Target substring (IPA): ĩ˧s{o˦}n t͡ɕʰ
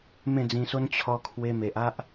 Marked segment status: correct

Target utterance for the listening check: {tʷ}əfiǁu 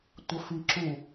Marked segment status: correct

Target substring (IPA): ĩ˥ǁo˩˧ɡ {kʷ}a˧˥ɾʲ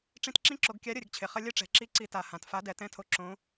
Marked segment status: incorrect: kʲ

